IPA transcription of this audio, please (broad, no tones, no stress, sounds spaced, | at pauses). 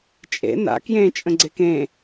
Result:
t͡ʃʼ ḛ n a̰ k j ẽ t͡ʃʼ ə̃ ɡ͡ǀ e k ẽ